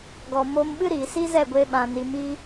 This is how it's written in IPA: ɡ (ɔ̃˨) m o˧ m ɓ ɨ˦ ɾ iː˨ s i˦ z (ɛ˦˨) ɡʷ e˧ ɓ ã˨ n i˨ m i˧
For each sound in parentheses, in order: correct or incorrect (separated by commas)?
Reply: incorrect, correct